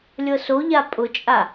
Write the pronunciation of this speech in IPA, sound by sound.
lʲ ɤ s o ʎ a pʼ ʊ t͡ʃʼ a

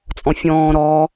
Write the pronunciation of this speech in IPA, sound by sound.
t͡sʼ ɔ̃ fʲ ɔ̃ː ɾ ɔ

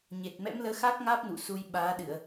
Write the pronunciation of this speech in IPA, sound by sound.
ɲ e˨˩ t̚ m ɛ̰˧˥ m l əː˨˦ x aː˦˥ k̚ ŋ aː˦˥ p̚ n ṵ˧˨ s u˧ j ɓ aː˨˦ ɗ ɨ˧˩˨ ə̯

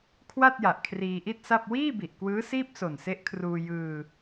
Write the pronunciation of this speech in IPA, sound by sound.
kʰ w a˥˩ t̚ j a˨˩ ʔ kʰ r iː˧ ʔ i˥˩ t̚ s a˥˩ p̚ w iː˥˩ b i˨˩ ʔ k w ɯː˦˥ s iː˥˩ p̚ s o˨˩ n s e˦˥ ʔ kʰ r uː˧ j ɯː˧

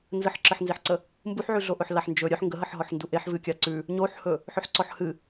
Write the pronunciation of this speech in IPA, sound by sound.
n z ə ħ ǁ ə ħ n z e ħ ǀ ə | m b u ħ ʕ ʉ ɮ o ʔ ɵ ħ l a ħ n d͡ʒ ɵ ɾʲ œ ħ ŋ ɡ ə ɦ ə ħ ɦ ɔ ħ n d u ʔ e ħ v ɨ kʲ a ǀ ʉ | ɲ o ħ h ɵ | ħ ɵ ħ ǀ ɔ ħ h ɨ

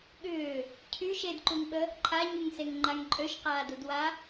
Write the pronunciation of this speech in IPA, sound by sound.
ɠ ʏː | cʰ y ʃ e d ǃ u ŋ ɓ ə | ǃʰ a ɲ y ŋ s e ŋ ŋ͡ǃ a ŋ ǃʼ ø ʃ q aː d u d w a

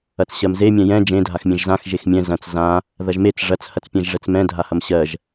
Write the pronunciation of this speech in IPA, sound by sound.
ɐ t͡s ɕ ɜ m z e mʲ ɛ̃ j ɛ̃ d͡ʒ ẽ dʱ a x mʲ ẽ ʒ z ã x ʒ e x mʲ ɛ̃ z ɐ̃ t͡s z ã | ð ɐ ʒ m e t͡s ʐ ɐ t͡s h ɐ t͡s pʲ ɛ̃ ʒ ʐ ɛ t͡s m ɛ̃ dʱ a h ɐ m ɕ ɜ ʒ

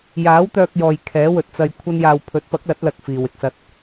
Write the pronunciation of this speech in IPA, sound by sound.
j aː˨˥ w t̪ œː˧ k̚ j ɔː˨ j kʰ ɛː˨˥ w ɵ˨ t̚ t͡s ɐ˧ j kʷʰ ɐ˥ n j aː˧ w pʰ ɵ˨˥ t̚ p ɐ˨˥ k̚ l ɐ˨˥ t̚ l ɐ˧ k̚ f iː˨ w ɪ˧ k̚ s ɐ˧ t̚

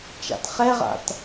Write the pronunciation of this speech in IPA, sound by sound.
t͡ʃ a̰ t χ ɛ ʁ a̰ t

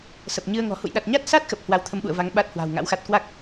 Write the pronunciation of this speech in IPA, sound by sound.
s ə˨˩ p̚ ɲ ɨ˧ ə̯ ŋ ɔ̤˨˩ h ṵ˧˨ j ɗ a˨˩ t̚ ɲ a˦˥ t̚ s a˦˥ t̚ x ə˨˩ p̚ h w a˧ w t̪ʰ ə˧ m ɓ ṵ˧˨ ə̯ v a˨˦ ŋ ɓ a˦˥ t̚ h w a̤ː˨˩ w ŋ a̰˧˥ w x a˦˥ t̚ k w a˦˥ k̚

